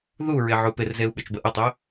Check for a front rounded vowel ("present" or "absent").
present